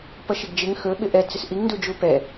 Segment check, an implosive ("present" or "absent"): present